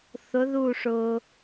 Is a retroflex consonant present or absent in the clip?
present